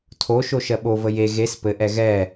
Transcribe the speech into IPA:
tʰ o ʃ o ʃ ɜ ɓ o v ə j e ɣ e s p ɘ ʔ ɛ ɣ ɛ

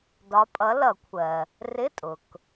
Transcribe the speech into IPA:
d ɒ˨˦ pʼ ʌ˨˦ l ʌ˨˩˦ kʷʰ ɜ˩ | r ɪ˧˥˧ tʼ ʊ˩ k

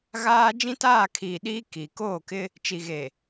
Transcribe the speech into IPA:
ɣ aː˦ d͡ʒ ĩ˦ t aː˦˨ kʰ iː˨ ɗ iː˦ k i˨ k oː˦˨ k ɪ˦ | t͡ʃ i˨ ɣ e˨

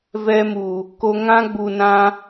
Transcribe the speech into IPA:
v ɛ˧ m u˨ | k o˧ ŋ ã˦ ɡ͡b u˨ n ã˧

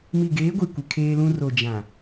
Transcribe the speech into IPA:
m i˨ ɡ eː˨˦ ɡʷ i˨ kʷ ɪ˨ kʰ eː˦ l ũ˦ r o˨ d͡ʒ ã˨

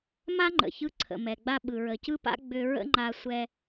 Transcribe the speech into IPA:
m a˥ ŋ͡ǃ ə̰˩ ç ɯ˧ ǀʰ ə̰˩ m ɛ˩ ɡ͡b a˧ ɓ ɯ˩ ɹ ə˩ c ɯ˥ p a̰˥ ɡ͡b ʏ˧ ɹ ə̰˥ ŋ͡ǃ a˧ sʷ ɛ˧

